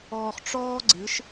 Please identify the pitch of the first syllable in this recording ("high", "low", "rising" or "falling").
low